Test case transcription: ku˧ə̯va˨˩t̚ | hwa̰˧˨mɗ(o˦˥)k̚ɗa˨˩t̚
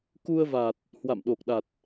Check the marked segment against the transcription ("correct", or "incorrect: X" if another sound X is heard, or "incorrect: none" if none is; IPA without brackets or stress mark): incorrect: o˨˩